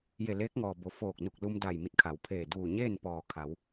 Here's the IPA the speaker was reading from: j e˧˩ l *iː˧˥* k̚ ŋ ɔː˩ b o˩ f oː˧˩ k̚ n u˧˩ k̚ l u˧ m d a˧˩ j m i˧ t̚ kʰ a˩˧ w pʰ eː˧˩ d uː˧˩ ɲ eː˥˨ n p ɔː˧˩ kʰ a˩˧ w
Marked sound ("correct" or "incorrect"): incorrect